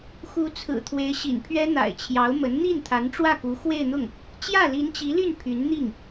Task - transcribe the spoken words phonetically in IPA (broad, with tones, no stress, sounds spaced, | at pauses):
x u˧˥ t͡sʰ ɹ̩˨˩ t̪ʰ w e˧˥ ɪ̯ ɕ ḭ˨˩ n pʰ ɥ ɛ˥ n̪ a̰˨˩ ɪ̯ t͡ɕʰ j ɑ˧˥ ʊ̯ m ə˧˥ n n̪ i˥˩ n t̪ʰ a˧˥ n ʈ͡ʂ w ä˥˩ k u˧˥ x w e˥˧ ɪ̯ n̪ ʊ˥˩ ŋ | t͡ɕ j ä˥˩ l i˧˥ n t͡ɕ i˧˥ l y˥˩ n pʰ y˧˥ n n̪ i˥˩ ŋ